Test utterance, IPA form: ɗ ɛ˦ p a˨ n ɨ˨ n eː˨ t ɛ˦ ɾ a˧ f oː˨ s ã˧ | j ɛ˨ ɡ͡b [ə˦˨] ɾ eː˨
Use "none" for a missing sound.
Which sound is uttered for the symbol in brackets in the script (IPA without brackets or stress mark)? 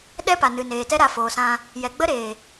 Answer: ə˦